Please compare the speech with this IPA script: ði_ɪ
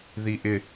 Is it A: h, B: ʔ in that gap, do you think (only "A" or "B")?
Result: B